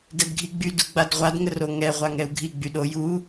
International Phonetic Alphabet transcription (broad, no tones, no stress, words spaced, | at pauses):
dɛdɡʱiɡ͡by duɡ͡badʁʷad ŋəroŋɛ ʁʷaŋɛu̯ɡʱi ɡ͡byɗo ju